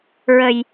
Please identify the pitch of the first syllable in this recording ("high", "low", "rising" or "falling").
low